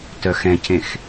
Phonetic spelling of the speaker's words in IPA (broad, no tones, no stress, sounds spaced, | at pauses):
t œ x ɛ̃ c ẽ x